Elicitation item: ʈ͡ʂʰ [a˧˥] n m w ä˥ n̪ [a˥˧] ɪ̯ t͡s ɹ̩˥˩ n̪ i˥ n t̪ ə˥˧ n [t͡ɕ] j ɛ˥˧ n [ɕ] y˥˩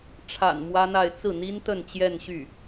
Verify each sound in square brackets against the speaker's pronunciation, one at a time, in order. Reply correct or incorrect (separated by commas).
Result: incorrect, correct, correct, correct